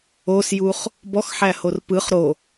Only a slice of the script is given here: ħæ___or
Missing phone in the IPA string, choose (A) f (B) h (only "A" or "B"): B